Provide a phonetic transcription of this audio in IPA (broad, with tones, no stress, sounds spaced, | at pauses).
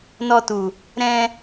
n ɔ˧ t u˨ | ɾ ɛ̃˧